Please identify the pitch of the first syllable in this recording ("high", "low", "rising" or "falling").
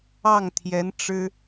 falling